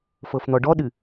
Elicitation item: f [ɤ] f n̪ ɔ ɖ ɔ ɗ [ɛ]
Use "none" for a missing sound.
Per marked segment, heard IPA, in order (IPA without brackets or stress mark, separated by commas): ɤ, ɨ